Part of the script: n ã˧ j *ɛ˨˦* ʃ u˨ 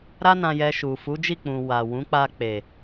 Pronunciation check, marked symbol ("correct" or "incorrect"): incorrect